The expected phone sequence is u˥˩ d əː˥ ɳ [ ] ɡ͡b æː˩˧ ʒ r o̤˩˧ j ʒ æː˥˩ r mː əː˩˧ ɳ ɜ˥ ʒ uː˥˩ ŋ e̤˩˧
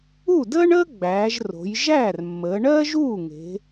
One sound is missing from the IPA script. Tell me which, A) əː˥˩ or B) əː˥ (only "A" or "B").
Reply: B